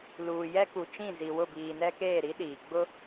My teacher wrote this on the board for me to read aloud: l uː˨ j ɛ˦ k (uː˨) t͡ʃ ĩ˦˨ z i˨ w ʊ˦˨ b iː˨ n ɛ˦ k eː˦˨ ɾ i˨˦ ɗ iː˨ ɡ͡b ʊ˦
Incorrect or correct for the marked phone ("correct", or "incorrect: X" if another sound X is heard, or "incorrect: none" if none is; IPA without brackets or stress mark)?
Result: incorrect: u˨